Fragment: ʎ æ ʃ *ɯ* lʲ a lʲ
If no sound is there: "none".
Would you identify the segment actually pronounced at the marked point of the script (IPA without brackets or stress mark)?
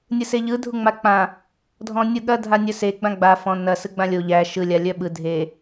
ɯ